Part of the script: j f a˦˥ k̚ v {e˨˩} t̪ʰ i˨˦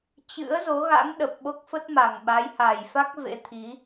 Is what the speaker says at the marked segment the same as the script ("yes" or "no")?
no